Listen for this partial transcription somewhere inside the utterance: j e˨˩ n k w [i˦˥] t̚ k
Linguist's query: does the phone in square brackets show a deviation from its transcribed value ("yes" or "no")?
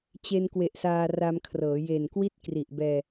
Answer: no